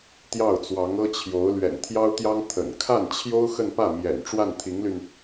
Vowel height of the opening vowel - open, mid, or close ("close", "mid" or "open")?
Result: open